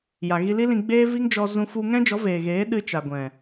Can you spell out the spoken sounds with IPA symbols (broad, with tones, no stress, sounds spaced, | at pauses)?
j a˨ ɣ i˧ l i˦ l ĩ˧ ɡ͡b eː˦ v i˦ ŋ d͡ʒ ɔ˧ z ũ˧ f u˧ ŋ ɛ̃˦ d͡ʒ ɔ˨˦ v eː˨ ɣ eː˨˦ ɗ ɨ˧ t͡ʃ a˨ ɡʷ ɛ̃˨